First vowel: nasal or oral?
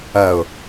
oral